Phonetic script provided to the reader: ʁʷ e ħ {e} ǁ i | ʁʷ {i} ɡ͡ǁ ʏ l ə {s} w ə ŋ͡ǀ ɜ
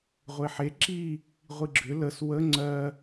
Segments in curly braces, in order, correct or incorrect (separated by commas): correct, correct, correct